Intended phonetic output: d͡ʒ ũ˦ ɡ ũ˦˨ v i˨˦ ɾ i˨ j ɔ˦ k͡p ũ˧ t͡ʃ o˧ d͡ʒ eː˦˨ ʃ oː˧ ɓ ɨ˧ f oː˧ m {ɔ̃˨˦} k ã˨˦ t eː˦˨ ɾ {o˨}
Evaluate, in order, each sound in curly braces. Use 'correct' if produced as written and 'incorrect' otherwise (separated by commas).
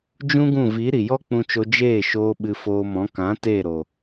correct, correct